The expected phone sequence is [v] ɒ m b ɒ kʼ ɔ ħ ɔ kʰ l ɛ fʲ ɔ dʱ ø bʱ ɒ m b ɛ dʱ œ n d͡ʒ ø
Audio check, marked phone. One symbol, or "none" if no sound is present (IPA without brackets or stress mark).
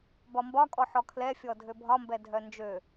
b